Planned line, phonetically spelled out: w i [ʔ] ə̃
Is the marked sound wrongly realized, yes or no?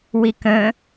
yes